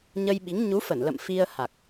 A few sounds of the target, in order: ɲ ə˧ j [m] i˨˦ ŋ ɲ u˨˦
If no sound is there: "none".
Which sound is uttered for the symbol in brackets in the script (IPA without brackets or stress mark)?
ɓ